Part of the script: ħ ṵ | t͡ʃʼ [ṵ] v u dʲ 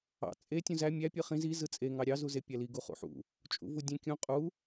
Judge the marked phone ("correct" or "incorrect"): correct